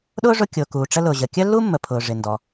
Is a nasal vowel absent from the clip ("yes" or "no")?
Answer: yes